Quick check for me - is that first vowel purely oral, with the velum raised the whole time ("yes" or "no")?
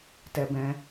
yes